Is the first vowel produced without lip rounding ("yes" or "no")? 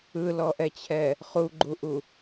yes